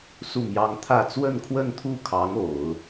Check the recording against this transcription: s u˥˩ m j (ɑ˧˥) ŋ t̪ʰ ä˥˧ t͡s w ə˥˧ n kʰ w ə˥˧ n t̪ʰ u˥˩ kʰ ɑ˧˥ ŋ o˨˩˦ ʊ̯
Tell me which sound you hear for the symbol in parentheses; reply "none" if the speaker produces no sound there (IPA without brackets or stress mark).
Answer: ɑ˥